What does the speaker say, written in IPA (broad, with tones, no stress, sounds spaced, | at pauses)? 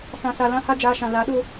s ã˨ s a˨ l ã˧ h a˦ d͡ʒ aː˧ ʃ ã˨ l a˨˦ ɗ o˦